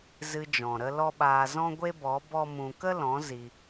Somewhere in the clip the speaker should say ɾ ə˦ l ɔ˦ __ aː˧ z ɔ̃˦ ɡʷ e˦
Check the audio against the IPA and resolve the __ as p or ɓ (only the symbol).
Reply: ɓ